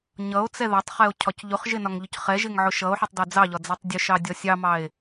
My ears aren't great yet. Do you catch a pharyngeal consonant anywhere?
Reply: yes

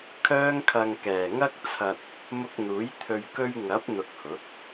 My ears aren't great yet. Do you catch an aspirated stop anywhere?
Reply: yes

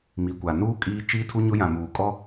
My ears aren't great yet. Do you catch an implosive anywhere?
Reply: no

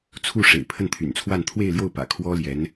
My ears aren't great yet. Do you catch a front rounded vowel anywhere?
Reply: yes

